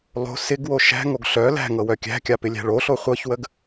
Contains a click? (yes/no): no